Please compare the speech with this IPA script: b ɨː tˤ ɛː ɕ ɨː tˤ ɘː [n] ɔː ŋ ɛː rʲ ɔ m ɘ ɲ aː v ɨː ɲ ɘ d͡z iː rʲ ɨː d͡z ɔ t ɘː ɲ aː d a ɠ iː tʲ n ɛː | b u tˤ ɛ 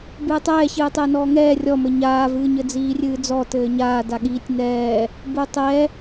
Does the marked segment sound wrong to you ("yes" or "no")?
no